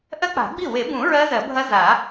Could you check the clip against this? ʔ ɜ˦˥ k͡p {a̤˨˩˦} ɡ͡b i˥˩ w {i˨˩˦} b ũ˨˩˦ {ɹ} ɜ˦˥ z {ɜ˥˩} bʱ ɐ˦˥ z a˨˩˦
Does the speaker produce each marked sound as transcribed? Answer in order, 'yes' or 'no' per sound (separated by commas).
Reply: yes, no, yes, no